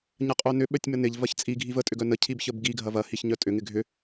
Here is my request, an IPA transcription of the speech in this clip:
ɲ ɐ qʼ œ n ʏ ɓ œ tʲ m ə n ɪ ʎ v ɐ ç t͡sʼ i ɡʱ i v ə tʼ ʏ ɡ œ n ə cʰ i b ç ə b ɡ i ɡʱ ɐ v ɐ h i ç ɲ œ tʼ ʏ ŋ ɪ ɡʱ ʏ

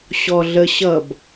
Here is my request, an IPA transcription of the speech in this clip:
ɕ ɔ ɮ ə ɕ ʌ b

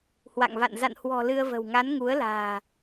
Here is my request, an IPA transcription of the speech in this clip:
h w a̰˧˨ ŋ v a̰˧˨ n z a̰˧˨ n h w ɔ̤˨˩ l ɨ˧ ə̯ v ə̤˨˩ w ŋ a˨˦ n ŋ u˨˦ ə̯ l a̤ː˨˩

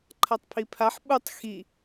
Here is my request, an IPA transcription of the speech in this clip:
ǃʰ a tˤ pʰ i pʰ a ħ ɓ u tˤ x i

